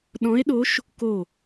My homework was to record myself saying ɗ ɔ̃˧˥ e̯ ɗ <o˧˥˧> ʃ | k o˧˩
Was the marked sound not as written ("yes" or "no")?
yes